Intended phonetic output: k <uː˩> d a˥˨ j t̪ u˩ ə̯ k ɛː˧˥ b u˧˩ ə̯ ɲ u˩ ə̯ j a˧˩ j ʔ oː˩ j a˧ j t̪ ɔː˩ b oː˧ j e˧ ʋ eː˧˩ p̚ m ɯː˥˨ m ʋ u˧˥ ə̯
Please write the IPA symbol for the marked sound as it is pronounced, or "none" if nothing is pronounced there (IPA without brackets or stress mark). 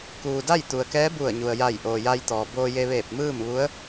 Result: uː˩